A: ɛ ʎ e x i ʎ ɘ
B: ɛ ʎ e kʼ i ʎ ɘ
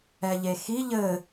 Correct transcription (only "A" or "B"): A